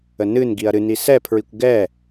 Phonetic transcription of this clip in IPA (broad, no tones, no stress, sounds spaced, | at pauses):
ə n ɨ n ɡ i ɐ̯ ɾ ɨ n i s ɛ pʰ ɹ i kʷ ɡ ɛ